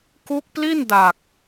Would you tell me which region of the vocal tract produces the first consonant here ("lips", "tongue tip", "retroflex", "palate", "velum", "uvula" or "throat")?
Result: velum